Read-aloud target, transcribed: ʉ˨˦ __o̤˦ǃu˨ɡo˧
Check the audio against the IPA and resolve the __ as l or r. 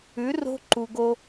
r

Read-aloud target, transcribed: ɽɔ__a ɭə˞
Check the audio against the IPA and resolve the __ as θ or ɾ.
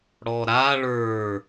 ɾ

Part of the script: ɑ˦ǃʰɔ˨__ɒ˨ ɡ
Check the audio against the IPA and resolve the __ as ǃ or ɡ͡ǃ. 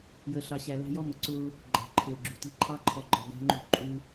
ɡ͡ǃ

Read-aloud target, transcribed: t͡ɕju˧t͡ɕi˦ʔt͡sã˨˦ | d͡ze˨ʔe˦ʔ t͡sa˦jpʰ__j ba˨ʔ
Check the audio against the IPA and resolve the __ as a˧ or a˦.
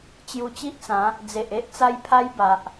a˦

